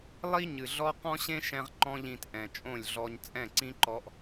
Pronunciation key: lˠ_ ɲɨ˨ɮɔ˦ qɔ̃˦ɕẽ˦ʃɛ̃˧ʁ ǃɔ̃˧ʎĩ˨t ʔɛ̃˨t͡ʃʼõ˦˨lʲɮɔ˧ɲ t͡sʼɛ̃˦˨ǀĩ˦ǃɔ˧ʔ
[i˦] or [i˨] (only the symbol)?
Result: i˦